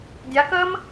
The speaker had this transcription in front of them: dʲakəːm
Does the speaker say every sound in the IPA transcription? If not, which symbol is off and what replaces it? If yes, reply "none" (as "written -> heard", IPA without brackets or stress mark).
none